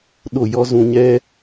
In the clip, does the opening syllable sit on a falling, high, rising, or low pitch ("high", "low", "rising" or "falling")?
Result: falling